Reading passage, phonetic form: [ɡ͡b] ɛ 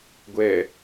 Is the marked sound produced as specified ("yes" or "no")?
no